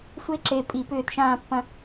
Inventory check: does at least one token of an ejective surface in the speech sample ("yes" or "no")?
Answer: yes